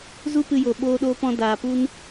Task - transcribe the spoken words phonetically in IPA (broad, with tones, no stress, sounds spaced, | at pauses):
z u˦ p ɨ˦ j o˧ ɓ oː˦ ɗ oː˦ p ɔ̃˦ d aː˧ p u˦ n